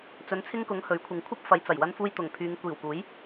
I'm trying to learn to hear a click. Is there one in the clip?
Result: no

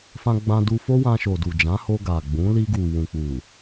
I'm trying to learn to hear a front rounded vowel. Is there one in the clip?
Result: no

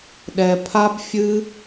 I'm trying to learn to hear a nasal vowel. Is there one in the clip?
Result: no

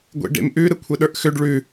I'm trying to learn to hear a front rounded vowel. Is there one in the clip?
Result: yes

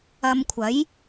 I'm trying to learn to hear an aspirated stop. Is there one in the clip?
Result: yes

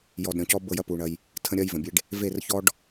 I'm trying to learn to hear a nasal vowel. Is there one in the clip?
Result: yes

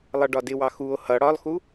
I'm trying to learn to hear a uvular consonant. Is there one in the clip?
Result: no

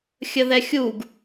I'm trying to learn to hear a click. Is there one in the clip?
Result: no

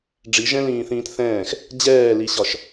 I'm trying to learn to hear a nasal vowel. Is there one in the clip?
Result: yes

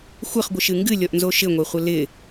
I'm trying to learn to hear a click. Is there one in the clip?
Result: no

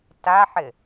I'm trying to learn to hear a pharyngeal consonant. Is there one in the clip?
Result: yes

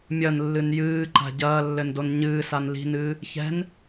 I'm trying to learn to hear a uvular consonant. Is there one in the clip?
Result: no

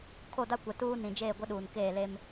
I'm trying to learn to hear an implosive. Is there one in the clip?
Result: yes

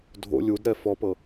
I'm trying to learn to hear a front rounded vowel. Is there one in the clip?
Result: no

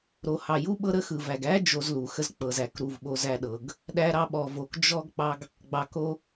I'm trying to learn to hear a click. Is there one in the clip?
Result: no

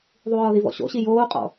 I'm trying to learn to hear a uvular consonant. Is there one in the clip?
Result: yes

